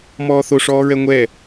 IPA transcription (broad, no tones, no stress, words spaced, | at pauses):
mɔːθoʂɔːɹɛ ŋʷɛ